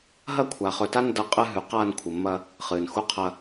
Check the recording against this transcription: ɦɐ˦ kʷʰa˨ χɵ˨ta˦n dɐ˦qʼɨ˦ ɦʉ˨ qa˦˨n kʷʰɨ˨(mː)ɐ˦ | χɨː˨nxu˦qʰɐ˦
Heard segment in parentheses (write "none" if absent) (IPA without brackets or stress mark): mː